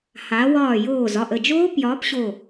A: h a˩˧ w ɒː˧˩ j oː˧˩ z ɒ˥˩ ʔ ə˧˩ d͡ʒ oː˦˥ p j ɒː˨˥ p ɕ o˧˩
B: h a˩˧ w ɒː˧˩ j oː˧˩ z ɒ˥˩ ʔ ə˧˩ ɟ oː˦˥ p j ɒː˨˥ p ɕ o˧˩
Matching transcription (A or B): A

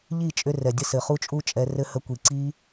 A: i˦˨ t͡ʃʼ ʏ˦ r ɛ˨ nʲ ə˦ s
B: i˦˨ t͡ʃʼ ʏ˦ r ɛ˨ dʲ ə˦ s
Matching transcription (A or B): B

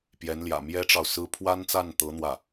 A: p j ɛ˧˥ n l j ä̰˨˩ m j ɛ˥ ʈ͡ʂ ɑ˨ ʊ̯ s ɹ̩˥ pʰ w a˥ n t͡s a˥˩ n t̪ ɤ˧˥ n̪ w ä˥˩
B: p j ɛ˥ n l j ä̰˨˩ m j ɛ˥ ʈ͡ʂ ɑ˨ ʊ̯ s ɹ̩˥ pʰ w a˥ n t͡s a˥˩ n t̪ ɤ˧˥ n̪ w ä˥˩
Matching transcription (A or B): A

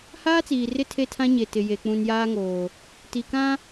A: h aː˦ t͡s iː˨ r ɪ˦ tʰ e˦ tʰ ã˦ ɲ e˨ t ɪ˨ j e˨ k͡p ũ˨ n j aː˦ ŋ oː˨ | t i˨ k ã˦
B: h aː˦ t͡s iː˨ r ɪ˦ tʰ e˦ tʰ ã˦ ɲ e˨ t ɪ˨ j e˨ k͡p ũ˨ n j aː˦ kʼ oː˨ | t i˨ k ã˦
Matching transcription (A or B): A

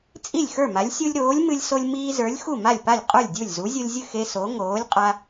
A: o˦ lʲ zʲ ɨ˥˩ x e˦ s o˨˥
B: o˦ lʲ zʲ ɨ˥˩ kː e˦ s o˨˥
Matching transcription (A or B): A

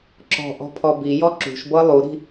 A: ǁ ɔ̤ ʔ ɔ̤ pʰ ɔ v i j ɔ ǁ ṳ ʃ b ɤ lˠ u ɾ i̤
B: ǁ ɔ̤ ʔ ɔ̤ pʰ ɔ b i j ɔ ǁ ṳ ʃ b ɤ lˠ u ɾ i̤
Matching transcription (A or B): B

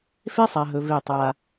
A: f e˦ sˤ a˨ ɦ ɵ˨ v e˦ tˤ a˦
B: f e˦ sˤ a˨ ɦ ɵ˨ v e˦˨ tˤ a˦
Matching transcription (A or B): B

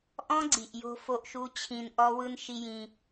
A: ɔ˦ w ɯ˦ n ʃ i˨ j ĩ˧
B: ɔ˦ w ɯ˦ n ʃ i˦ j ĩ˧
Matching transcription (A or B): B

